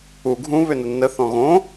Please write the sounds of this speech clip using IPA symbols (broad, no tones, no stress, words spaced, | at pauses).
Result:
u ɡʱũ βʏnʊnːə θɔ̃ɣõ